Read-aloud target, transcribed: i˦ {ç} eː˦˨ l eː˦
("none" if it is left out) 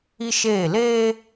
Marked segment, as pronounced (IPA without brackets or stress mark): ʃ